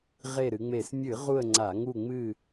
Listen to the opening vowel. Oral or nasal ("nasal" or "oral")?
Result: oral